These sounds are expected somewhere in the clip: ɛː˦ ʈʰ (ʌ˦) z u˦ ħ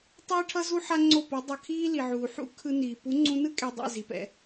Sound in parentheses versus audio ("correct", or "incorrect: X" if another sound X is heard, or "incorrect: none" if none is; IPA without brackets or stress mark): correct